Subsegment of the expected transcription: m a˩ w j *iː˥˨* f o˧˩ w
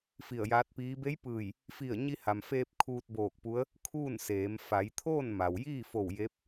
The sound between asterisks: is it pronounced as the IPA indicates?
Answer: yes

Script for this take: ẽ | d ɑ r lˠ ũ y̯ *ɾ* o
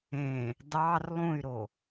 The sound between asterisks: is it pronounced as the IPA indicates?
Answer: yes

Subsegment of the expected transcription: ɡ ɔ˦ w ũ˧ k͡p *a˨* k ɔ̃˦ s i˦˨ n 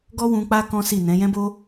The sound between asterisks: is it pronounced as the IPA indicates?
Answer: no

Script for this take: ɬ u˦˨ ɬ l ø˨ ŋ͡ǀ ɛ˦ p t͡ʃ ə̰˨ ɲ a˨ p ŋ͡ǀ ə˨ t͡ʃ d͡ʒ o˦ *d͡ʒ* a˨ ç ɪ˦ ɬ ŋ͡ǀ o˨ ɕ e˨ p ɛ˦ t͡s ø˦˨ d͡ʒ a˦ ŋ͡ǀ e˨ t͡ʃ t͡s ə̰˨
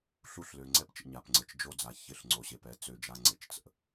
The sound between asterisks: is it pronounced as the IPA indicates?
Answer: no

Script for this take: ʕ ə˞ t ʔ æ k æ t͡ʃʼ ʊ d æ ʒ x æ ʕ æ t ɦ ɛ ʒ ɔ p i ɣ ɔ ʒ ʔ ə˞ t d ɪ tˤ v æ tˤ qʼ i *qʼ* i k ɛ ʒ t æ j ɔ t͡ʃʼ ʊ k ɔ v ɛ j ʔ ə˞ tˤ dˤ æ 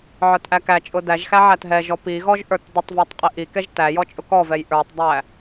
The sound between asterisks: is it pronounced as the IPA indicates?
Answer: no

